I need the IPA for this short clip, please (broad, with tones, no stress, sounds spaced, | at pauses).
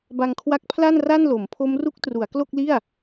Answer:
b a˧ ŋ kʰ w a˦˥ k̚ pʰ l a˥˩ n r a˥˩ n l o˩˦ m pʰ o˦˥ m r u˦˥ k̚ t r u˩˦ a̯ k l o˥˩ k̚ l i˥˩ a̯